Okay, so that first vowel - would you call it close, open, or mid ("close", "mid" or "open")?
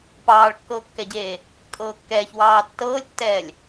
open